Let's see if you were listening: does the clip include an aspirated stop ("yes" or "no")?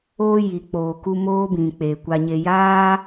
no